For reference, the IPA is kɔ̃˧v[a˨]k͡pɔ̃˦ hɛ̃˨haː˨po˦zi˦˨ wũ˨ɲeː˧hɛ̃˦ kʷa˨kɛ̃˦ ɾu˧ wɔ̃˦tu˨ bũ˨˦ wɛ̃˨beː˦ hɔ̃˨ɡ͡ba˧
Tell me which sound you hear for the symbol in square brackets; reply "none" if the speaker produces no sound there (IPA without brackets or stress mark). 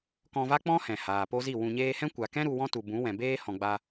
a˦